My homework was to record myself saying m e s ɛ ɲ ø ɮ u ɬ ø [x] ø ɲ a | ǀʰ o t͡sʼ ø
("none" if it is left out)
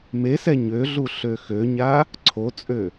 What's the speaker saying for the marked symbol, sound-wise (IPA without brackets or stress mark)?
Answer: x